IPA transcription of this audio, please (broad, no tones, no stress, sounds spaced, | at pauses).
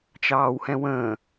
t͡ʃ ɑː w h ɛ̃ w ə̃ː